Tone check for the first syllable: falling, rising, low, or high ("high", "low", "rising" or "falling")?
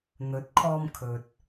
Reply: rising